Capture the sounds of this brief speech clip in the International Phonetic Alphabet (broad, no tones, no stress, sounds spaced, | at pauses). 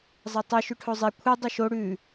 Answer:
zˤ ɐ tˤ ɨ ʃ ʉ ʈʰ o zˤ i kʷʰ i dˤ u ʃ o ɽ ʉ